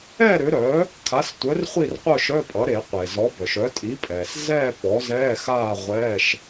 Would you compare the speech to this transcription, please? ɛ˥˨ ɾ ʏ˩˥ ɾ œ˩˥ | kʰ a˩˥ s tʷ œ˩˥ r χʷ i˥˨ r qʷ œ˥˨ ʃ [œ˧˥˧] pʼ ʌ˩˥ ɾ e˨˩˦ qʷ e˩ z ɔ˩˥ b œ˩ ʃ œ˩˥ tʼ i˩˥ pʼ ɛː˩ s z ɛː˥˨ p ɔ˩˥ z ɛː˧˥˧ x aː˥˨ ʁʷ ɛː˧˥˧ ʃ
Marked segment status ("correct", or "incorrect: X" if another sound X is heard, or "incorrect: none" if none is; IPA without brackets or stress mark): correct